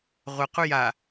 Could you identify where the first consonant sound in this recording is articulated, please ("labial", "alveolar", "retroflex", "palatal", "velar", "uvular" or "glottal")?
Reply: uvular